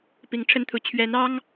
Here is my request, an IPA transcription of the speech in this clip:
p i˧˥ ŋ ʈ͡ʂʰ ə˥ n t̪ʰ u˧˥ t͡ɕʰ ɥ ɛ˧˥ n ɑ˥ ŋ

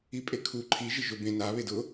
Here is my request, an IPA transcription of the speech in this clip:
i pʼ e kʰ u ǃʰ i ʒ ɪ ʒ ʊ b ẽ n a β e d ʊ

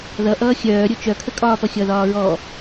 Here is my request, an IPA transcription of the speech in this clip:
ð ʌ ʔ ʌː xʲ œː ɾʲ o t͡ʃ œ kʰ ə kʼ ɒː p ʌ xʲ ʌ ð ɒː ɹ ɔ

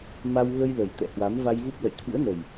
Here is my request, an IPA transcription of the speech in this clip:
m a˧ w ɣ ə˧ j l ə˨˩ j t̪ ɛ̰˧˨ h w a˨˦ m v a˧ j ɣ u˦˥ p̚ l ə̰˧˨ j t̪ʰ ɨ̰˧˥ ə̯ n ə˨˩ j

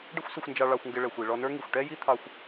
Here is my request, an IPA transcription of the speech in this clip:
ɖ ə˥ xʷ s ə˧ xʷ n d͡ʒ ɑ˧ ɭ ɑ˧ xʷ ŋ ɡ ɪ˧ ɭ ɛ˩ xʷ i˩ ɭ ɔ˧ n ə˞˥ ŋ i˩ xʷ ʈ ɛ˥ j i˥ t̪ʰ ɑ˧ xʷ

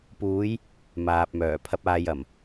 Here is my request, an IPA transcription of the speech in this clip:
p uː˨˧ j | m aː˨ p̚ m œː˨˩ pʰ ɐ˨ p̚ aː˨ j ɐ˨˩ m

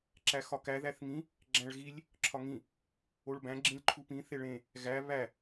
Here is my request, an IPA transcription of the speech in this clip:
ǁ æ x ɒ k æ ð æ θ ŋ ĩ | ɡ͡ǁ æ̃ ɭ ɣ i lʲ | ǁʰ ɒ ŋ ĩ | o ɭ b æ̃ ɡ͡ǁ ĩ lʲ ǃʰ u p ĩ θ e ɭ ẽ | ɣ æ β æ

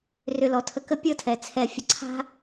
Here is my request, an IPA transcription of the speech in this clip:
r ʏ˧ l ɔ˨˦ tʰ ə˧ k ə˦ pʲ ɤ˦˨ tʰ ɛ˨ t͡sʰ ɛ˧ fʲ ə˧ ǀʰ a̤˦

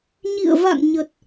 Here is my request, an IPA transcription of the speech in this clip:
ɲ ḭ˧˨ ə̯ v a̰˧˨ ŋ ɲ ə˨˩ t̚

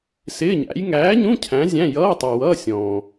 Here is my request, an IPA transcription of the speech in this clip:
s ɪː˧˥˧ ɲ æ̰˨˥ j ŋ æː˨˥ ɲ ũ˧˥˧ cʰ æ̃˨˥ zʲ æ̃˧˥˧ j ʌː˧˥˧ tˤ ə˞˨ w ʌː˧˥˧ sʲ ɔ̃ː˨

